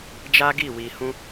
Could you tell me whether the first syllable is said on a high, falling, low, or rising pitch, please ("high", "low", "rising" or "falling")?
high